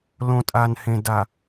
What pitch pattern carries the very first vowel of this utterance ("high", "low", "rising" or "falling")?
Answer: low